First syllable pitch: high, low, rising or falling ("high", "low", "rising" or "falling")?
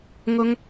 high